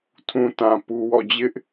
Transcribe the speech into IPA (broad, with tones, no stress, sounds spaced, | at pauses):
tʰ ũ˨ t ã˨ p u˨ w ɔ̰˦˨ d͡ʑ ɪ˦ ʔ